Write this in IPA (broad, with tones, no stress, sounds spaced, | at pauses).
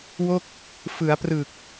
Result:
w o˥˩ k̚ | f ɯ˩˦ a̯ p r ɯ˨˩ k̚